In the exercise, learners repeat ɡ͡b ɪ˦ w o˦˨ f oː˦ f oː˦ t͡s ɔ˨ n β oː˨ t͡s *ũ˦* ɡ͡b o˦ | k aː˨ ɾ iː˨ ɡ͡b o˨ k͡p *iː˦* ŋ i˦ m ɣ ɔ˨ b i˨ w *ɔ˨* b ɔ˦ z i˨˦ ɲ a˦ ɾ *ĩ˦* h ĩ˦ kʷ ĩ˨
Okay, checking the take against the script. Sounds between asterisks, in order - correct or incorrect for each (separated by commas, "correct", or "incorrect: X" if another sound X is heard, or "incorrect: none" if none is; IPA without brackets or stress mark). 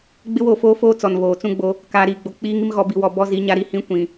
correct, correct, correct, incorrect: i˦